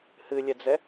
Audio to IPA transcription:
hɨlʲɛd͡zɛ

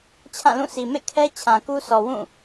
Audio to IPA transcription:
t͡ɕʰã˦˨lũ˦˨sʰi˨ mḛ˦˨kʰɛ˦ t͡ɕʰã˨ku˦sʰɔ˨ wũ˦˨

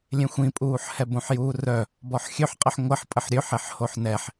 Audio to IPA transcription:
lʲẽxʷĩpʼuːħhɛ bõħjuːrœ | bɔħxʲøħqʼəħ ŋʷəħ pʼəħɾʲøħ eħhoħnɛħ

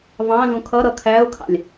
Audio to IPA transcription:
vɑ̃zũ kʰʌɾʌ kʰæʊ̯kʰɑ̰lʲ

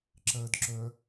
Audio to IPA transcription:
ǁɜd ǁœ

